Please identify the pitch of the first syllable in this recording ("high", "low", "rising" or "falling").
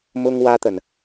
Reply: high